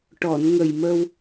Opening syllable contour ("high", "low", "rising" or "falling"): low